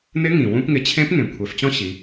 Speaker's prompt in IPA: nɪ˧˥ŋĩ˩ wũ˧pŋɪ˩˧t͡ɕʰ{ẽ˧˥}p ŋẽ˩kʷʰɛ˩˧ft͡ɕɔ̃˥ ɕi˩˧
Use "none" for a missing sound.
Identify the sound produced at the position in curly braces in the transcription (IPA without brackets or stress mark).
ẽ˧˥